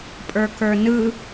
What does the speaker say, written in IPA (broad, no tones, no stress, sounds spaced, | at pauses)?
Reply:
pʼ ə˞ k ə˞ n ɯ